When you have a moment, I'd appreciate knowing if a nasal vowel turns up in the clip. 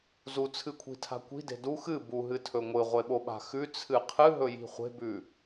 no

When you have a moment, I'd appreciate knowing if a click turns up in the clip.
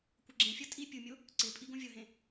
yes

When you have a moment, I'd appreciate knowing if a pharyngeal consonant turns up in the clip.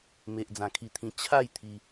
no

